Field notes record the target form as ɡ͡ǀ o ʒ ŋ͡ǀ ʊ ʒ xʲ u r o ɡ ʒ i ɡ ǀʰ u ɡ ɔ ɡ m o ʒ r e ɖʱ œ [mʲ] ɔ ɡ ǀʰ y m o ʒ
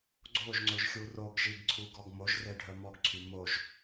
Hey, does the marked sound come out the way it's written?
no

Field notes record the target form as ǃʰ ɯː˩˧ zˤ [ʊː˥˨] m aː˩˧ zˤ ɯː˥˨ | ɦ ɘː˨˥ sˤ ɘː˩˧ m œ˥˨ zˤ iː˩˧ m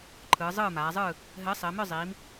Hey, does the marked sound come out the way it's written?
no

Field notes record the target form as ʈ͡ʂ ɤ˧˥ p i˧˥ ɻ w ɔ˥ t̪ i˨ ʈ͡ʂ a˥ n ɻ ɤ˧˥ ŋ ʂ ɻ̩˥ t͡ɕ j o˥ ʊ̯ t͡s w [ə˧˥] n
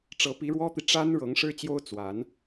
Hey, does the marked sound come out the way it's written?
no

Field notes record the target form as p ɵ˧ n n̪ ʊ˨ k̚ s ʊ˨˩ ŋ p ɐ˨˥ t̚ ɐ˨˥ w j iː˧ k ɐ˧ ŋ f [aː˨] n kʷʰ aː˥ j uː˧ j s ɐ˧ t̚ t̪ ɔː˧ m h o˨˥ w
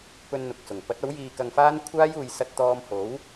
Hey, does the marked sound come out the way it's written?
no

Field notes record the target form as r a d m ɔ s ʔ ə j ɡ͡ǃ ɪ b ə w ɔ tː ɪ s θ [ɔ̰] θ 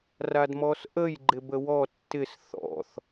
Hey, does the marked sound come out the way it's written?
yes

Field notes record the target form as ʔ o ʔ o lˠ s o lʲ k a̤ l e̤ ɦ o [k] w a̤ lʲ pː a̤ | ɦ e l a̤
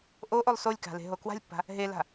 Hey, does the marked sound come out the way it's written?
yes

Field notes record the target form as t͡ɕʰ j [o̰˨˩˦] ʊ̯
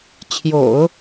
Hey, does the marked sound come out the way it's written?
yes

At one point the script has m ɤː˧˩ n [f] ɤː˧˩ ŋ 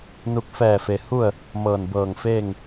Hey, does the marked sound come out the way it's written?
no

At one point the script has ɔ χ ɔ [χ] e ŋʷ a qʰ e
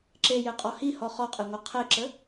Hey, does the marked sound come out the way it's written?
no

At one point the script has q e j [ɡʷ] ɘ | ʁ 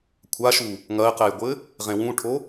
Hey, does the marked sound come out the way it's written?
yes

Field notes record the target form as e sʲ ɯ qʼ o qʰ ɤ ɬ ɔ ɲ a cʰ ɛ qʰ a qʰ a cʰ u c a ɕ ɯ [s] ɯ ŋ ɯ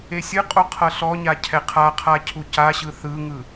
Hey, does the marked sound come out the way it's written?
no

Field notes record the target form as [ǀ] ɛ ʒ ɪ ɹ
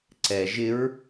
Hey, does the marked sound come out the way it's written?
yes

